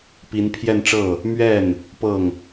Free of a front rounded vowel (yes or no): yes